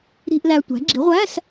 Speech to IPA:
ɾ i̤˧˥˧ ʔ l æ˧ tʷ æ̤˩˥ ɡ͡ǁ i˩˥ ʁʷ æ˧˥˧ s

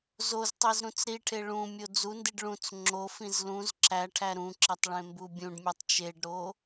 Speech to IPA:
z o z tˤ i z ɾ ũ t͡s ɾ i ʈʰ e ɭ ũ mʲ o d͡z u n d i ɖ ɭ ũ t͡s ŋ͡ǁ o f ĩ z l ũ z ǁ æ ʈʰ æ ɾ ũ ǁ e tˤ ɭ ẽ m b u bʲ ũ ɖ mʲ e tˤ t͡ʃ e ɖ ɾ o

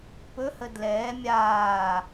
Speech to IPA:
p ɵ h ə d l ɛː mʲ aː

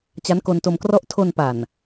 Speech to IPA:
t͡ɕ a˦˥ n k o˧ n t o˧ m k r ɔ˥˩ ʔ tʰ o˧ n p a˨˩ n

